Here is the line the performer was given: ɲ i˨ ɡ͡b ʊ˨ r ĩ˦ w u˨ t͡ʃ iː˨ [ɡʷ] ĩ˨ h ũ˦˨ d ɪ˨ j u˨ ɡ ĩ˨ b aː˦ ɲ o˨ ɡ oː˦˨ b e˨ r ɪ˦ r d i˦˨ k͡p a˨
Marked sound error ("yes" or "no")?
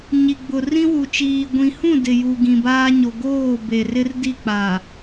no